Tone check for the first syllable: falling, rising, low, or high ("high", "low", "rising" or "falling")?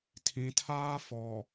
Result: low